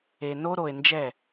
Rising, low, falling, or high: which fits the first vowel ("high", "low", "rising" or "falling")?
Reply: low